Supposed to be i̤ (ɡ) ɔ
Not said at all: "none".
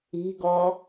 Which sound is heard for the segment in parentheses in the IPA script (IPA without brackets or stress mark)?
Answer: ɡ